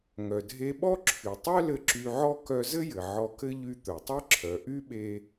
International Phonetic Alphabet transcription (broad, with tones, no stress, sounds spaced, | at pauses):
ŋ œ˩ dʱ e˧ ɓ ɔ˥ ǁʰ y˩ tˤ œ˥ l ɘ˧ ǁ y˧ ʕ ɔ˥ k œ˧ z ɘ˥ j ɘ˩ ʕ ɔ˧ k ɘ˥ ʎ y˧ t̪ œ˩ tˤ e˥ ǁʰ œ˩ ʔ y˥ ɓ e˧